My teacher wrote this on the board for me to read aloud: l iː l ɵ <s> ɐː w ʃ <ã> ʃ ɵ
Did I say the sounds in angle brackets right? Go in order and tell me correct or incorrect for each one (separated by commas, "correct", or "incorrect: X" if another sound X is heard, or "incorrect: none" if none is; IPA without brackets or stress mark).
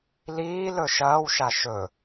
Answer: incorrect: ʃ, incorrect: a